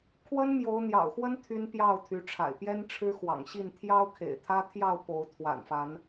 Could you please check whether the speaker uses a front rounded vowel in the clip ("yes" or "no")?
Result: yes